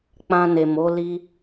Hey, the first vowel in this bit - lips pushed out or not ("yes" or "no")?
no